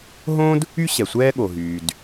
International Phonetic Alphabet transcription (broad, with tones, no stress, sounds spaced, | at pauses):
ɦ õ˥ d | y˥ ɕ ɛ˩ sʷ ɛː˥ ɠ o˩ ɦ yː˩ d